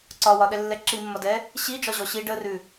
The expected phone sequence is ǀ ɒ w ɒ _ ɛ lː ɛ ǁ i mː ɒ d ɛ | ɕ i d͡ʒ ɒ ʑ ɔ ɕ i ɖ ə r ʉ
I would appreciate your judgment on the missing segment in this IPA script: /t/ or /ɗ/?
ɗ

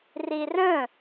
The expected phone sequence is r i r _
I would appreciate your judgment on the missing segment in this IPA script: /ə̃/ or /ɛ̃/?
ə̃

